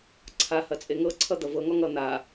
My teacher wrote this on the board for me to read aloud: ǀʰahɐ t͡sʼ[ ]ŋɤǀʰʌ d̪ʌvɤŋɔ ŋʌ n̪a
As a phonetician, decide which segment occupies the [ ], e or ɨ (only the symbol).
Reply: e